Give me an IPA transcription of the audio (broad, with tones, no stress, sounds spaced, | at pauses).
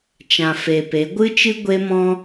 t͡ʃ ã˨ f e˨ p e˨˦ ɡʷ ɨ˦ t͡ʃ ɨ˦ ɡʷ e˦ m ɔ̃˦